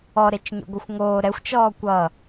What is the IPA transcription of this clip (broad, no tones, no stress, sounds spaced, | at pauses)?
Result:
ɔ ɾ e t͡ʃ ɲ o̰ ɡʷ ʌ xʷ ŋ oː ɾ ɛ xʷ t͡ʃ ɔː kʷ ʌ